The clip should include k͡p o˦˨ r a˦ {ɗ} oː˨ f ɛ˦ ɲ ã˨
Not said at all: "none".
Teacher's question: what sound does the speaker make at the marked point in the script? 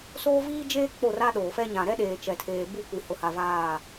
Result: ɗ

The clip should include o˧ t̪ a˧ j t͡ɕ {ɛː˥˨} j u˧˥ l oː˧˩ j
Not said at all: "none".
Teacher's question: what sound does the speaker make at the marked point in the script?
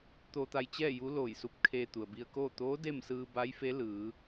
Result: ɛː˥˨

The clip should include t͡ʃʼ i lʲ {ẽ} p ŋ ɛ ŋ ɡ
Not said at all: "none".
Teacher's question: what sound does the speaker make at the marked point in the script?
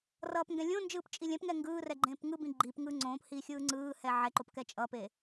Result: ɛ̃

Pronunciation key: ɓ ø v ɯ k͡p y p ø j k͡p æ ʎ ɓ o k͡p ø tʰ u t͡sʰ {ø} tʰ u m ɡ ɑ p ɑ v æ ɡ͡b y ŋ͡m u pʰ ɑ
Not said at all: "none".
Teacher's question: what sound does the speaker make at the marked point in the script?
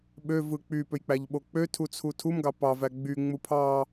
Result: u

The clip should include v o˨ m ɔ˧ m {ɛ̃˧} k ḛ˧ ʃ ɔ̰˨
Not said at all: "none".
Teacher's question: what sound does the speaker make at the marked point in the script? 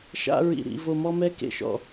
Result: ɛ˧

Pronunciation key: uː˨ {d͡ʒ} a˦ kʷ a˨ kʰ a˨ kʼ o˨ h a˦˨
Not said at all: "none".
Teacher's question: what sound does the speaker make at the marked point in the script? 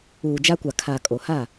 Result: d͡ʒ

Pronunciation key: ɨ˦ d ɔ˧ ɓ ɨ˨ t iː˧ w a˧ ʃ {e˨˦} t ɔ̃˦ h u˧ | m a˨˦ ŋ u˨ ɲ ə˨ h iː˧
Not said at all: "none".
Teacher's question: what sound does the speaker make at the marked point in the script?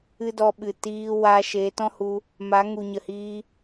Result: e˨˦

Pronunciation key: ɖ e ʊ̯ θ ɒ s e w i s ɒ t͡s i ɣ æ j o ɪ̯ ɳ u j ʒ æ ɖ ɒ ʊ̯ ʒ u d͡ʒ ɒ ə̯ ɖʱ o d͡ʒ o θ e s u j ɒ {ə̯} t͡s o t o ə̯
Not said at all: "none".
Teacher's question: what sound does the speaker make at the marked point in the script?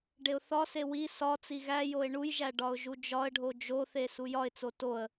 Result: ɪ̯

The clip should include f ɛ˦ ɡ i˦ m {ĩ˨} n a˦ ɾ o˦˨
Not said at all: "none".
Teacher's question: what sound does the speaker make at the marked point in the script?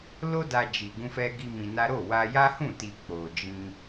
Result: ĩ˧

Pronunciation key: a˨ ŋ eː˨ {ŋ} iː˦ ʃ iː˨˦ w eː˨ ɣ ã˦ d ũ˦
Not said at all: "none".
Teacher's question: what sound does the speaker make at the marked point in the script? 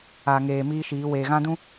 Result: m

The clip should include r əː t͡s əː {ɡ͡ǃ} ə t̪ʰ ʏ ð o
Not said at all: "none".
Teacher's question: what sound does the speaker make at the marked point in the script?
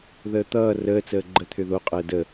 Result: ɡ͡ǃ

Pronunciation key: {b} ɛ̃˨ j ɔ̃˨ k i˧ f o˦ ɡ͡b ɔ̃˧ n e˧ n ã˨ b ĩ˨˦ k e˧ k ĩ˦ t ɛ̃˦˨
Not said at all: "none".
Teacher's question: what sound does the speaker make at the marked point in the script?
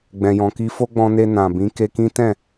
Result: ɡ͡b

